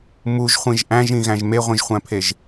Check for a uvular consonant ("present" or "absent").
present